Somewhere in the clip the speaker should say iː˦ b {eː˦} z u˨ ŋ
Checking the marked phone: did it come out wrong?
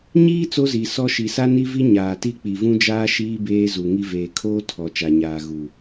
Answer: no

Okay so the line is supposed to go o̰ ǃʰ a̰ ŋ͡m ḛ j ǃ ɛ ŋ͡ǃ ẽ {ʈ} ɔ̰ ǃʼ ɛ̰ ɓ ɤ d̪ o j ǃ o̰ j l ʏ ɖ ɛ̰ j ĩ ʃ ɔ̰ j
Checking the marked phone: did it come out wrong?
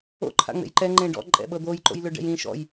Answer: yes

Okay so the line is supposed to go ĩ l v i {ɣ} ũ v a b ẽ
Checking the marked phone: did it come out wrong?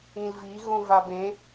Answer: no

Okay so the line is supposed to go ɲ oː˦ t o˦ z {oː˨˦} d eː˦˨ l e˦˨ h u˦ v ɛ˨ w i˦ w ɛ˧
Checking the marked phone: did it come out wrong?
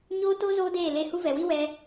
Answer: yes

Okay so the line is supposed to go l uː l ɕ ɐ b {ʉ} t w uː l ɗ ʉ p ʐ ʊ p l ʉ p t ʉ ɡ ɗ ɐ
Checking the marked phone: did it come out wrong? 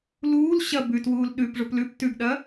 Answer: no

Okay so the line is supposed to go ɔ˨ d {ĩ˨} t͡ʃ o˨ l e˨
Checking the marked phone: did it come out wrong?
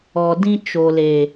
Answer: yes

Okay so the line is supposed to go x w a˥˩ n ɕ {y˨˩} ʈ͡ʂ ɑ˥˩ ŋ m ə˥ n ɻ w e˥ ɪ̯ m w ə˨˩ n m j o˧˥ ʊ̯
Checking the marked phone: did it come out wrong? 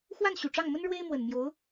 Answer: no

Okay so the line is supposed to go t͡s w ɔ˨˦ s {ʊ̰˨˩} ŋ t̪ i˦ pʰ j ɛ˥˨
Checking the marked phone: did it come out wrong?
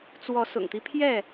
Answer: no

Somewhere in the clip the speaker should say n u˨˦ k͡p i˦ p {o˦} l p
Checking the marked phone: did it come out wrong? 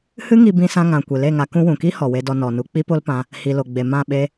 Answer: no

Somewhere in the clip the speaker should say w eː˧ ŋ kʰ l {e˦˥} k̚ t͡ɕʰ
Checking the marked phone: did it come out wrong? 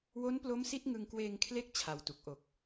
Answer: no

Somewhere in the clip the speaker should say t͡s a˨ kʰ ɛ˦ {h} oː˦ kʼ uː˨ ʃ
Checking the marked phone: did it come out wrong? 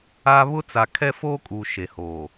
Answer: yes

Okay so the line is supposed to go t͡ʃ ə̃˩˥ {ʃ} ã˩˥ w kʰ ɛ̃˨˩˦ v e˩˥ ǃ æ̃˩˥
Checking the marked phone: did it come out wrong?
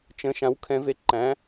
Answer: no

